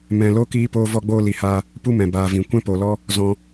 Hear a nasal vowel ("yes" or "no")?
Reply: yes